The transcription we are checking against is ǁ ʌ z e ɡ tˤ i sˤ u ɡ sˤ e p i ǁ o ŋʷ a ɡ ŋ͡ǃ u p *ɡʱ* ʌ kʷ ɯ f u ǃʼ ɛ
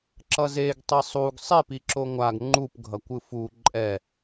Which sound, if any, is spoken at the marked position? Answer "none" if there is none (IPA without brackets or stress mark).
ɡʱ